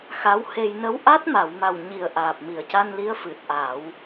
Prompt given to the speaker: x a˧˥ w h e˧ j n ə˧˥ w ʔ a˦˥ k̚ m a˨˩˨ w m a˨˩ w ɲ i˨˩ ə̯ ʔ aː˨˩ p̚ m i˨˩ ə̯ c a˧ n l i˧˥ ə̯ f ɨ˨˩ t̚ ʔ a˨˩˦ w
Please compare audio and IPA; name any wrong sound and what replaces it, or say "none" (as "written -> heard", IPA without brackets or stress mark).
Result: k̚ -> t̚